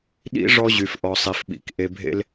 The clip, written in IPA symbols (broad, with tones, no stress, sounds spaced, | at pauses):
ɗ ḭ˦ ʐ ɔ˦ ʑ y˨ f ʔ ɔ˨ sˤ i˨ f ɓ ḭ˨ k ʔ e˨ bʱ ḛ˦ l